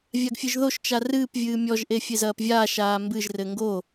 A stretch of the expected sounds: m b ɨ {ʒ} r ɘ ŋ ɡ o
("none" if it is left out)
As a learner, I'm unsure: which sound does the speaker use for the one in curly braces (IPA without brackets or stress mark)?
ʒ